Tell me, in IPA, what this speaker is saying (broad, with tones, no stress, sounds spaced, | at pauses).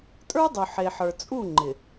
tʼ ə˞˦ dˤ u˨ ħ e˨ ħ ə˞˨ t͡sʼ u˦˨ ŋ͡ǃ ɪ˨